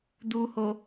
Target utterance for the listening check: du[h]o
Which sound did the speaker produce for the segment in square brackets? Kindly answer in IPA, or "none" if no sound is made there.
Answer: h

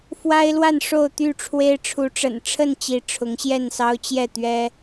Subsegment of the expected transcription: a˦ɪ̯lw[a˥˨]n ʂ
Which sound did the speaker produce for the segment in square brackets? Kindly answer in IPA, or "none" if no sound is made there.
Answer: a˥˨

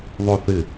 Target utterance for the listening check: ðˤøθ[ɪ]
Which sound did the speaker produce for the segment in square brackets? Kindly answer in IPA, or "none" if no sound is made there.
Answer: ɪ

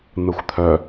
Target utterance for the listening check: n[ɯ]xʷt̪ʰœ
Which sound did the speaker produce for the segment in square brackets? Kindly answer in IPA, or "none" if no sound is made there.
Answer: ɯ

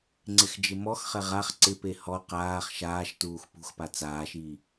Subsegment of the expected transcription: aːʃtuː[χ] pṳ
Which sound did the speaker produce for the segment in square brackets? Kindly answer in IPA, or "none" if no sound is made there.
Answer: x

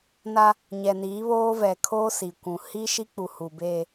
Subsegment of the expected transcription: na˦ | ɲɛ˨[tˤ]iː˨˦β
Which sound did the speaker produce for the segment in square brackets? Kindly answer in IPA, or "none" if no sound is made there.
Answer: n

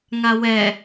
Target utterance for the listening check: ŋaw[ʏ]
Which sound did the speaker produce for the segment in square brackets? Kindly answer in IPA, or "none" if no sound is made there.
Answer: ɛ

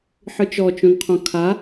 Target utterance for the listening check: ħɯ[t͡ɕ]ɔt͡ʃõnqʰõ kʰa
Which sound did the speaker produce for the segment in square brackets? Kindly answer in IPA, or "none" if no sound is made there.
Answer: t͡ʃ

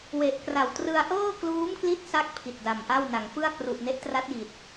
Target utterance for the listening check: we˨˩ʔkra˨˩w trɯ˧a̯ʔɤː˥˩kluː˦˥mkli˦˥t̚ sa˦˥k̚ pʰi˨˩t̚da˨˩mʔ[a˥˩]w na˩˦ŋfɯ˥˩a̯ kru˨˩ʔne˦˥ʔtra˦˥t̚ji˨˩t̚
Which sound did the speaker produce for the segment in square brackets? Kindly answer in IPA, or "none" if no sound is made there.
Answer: a˥˩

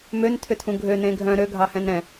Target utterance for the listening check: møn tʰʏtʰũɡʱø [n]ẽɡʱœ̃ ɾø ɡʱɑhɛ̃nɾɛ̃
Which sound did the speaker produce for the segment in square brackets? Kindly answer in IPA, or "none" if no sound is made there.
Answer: n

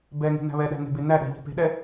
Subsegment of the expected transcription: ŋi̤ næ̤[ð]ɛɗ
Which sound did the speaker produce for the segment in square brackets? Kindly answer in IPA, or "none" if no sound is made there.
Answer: β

